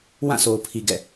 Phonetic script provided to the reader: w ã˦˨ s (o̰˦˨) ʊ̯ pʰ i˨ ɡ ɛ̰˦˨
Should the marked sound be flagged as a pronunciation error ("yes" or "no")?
yes